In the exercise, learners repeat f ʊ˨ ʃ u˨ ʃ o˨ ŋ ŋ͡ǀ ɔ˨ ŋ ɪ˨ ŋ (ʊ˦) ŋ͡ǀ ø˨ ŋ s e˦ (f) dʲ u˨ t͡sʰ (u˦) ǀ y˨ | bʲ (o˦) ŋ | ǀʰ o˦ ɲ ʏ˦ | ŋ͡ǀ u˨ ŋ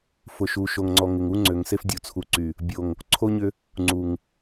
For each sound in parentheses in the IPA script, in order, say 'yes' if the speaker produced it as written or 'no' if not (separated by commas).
no, yes, no, no